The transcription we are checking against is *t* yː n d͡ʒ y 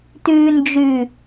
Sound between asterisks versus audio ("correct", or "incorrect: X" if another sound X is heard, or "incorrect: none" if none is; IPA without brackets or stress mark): correct